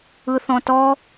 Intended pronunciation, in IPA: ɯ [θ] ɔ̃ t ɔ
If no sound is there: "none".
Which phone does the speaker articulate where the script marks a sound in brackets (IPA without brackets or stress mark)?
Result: θ